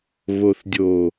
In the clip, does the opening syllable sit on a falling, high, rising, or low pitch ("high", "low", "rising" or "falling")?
low